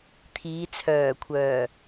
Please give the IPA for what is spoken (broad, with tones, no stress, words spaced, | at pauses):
t̪ʰiː˨˧t͡sʰœː˨˩kʷʰœː˨˩